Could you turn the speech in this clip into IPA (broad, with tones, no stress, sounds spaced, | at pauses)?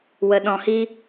w ə˧ ɗ ɔ̃˧ h i˦